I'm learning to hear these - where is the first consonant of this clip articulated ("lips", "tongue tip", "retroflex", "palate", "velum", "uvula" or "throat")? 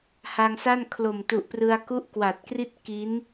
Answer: throat